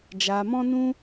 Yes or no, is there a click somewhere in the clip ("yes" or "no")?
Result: no